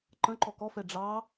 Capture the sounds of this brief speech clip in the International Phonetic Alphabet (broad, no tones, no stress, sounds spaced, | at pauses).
ǃ ə̃ ǃ ɔ k ɔ f ɛ ɖ͡ʐ ɑ